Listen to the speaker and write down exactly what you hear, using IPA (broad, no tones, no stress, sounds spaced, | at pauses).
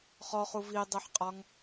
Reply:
χ ɔ χ u v i dˤ i ħ qʼ ɒ ŋ